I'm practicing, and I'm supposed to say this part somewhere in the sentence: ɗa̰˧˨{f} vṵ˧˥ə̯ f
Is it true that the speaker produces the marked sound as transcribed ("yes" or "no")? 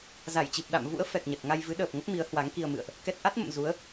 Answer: no